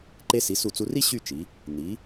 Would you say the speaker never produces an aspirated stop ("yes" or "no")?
yes